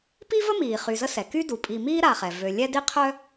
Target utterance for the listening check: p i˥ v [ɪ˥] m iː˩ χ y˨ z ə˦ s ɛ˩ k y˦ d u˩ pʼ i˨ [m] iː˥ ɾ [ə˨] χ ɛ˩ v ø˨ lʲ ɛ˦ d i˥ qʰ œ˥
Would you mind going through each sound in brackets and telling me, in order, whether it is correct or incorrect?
incorrect: ə˥, correct, incorrect: a˨

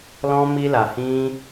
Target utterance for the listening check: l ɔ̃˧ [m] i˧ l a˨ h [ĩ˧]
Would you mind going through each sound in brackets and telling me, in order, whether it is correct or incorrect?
correct, correct

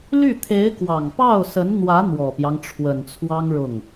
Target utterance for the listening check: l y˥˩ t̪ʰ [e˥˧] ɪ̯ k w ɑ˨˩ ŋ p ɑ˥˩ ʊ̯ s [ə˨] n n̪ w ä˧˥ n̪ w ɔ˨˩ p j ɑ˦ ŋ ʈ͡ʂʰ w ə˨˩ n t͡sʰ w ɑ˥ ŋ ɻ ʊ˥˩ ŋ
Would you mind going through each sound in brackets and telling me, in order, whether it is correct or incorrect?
incorrect: e˧˥, incorrect: ə˧˥

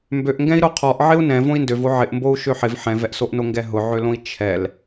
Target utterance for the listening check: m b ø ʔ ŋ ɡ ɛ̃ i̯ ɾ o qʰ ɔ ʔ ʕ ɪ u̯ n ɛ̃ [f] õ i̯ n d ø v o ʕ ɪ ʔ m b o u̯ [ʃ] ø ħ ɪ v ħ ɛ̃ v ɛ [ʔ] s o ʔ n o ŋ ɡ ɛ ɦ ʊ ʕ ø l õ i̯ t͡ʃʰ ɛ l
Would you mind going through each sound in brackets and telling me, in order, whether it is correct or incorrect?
incorrect: v, correct, correct

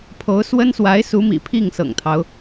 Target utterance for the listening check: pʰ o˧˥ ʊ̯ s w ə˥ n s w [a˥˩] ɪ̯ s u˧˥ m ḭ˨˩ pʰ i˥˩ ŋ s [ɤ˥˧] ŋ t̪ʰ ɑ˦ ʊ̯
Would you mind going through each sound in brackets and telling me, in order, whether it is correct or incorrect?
incorrect: a˧˥, incorrect: ɤ̰˨˩

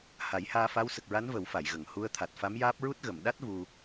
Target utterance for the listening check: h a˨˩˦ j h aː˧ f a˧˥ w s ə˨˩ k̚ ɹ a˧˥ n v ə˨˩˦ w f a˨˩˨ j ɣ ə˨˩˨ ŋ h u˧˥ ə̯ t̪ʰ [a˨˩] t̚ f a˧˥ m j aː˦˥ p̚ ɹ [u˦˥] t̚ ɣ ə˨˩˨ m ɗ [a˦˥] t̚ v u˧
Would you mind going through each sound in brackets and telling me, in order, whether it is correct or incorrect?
correct, correct, correct

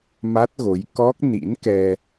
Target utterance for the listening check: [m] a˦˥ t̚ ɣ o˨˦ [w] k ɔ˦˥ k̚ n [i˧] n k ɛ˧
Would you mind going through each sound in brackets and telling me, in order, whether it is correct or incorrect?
correct, incorrect: j, incorrect: ḭ˧˥

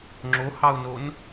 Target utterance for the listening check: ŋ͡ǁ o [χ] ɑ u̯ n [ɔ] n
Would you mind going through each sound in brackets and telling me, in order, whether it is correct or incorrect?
incorrect: h, incorrect: o

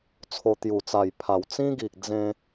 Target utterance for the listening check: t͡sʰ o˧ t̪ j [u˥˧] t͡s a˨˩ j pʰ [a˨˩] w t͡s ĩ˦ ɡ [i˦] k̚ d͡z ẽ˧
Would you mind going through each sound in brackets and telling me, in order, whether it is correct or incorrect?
incorrect: u˨˩, correct, incorrect: i˨

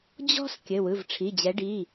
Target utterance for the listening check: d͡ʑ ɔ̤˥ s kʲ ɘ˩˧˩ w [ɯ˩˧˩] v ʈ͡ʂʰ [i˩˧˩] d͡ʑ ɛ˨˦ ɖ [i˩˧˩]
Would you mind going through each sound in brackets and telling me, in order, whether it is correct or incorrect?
correct, correct, correct

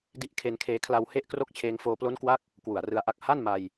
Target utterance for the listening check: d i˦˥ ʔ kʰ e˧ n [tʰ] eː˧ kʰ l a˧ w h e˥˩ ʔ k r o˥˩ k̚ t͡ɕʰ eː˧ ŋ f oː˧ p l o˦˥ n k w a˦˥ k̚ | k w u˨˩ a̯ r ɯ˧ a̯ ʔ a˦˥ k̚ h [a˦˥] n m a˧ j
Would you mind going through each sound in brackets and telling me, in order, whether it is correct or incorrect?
incorrect: kʰ, incorrect: a˥˩

